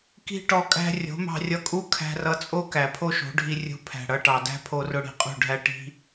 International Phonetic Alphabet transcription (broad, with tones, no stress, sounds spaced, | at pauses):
k i̤˦ ʈ ɔ˧ kʼ æ̤˦ rʲ o̤˨˦ m ɑ̤˧ rʲ ʌ˧ kʼ u˦ kʰ æ̤˧ r ʌ˧ t͡sʼ o˦ k æ˨ pʰ o˦ ʃ o̤˨˦ ɖʱ i˧ rʲ ṳ˧ pʰ æ̤˨ ɽ ʌ˧ ʈ ɑ˨ d æ̤˦ pʰ o˧ r ʊ˧ ɽ i̤˧ qʼ ṳ˦˨ ɖʱ æ˦ ʈ i̤˦